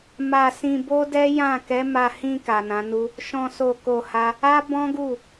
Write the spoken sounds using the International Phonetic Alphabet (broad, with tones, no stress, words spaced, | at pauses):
ma˧sĩ˧ bo˦dɛ˦jã˦˨ kɛ˨˦ma˧hĩ˧ ka˨nã˨˦nu˦ | ʃɔ̃˧so˧ ko˧ha˦ | a˦ bɔ̃˦ɡu˦˨